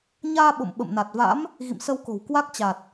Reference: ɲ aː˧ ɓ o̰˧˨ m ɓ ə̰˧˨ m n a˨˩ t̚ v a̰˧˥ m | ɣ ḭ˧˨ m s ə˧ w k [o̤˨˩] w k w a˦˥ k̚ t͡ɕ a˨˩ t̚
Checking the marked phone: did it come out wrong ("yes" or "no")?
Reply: no